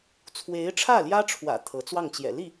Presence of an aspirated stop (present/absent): present